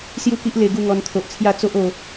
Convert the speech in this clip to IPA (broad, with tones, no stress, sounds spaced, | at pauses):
s j u˥˧ k i˦ ʔ l e˧ ɡ u˥˧ ŋ ɔ˧ n t̪ʰ o˨ ʔ t͡sʰ j a˥˧ t͡s o˦ ʔ o˧